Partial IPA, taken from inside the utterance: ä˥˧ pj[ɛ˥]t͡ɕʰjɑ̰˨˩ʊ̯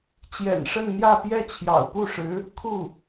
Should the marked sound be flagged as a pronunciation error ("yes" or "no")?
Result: yes